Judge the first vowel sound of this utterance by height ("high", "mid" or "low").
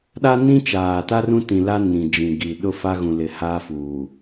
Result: low